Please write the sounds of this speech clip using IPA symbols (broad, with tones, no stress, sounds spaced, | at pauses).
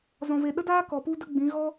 z ɔ̃˨ v e˨ ɗ ə˦ d aː˦ k ɔ˨ p u˦ d ə˦ ɡ͡b ĩ˨˦ ɣ ɔ˦